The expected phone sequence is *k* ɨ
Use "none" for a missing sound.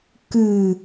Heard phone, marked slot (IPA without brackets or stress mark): k